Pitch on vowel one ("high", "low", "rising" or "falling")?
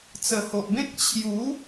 low